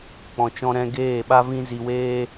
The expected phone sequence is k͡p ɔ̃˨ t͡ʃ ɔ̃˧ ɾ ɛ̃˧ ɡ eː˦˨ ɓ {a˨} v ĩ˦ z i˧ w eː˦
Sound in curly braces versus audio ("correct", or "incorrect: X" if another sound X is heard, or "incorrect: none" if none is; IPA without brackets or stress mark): incorrect: a˦